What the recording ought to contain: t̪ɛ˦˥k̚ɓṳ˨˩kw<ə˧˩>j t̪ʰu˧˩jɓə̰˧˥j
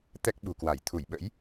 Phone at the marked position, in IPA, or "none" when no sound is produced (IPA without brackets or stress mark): a˧˩